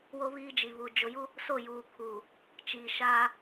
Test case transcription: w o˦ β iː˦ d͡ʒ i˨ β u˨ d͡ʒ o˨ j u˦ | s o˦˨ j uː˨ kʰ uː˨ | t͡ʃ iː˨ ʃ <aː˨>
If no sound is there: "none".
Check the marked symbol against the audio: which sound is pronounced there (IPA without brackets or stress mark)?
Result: aː˦